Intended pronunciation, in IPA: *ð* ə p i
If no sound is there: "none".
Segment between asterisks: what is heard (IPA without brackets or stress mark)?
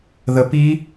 ð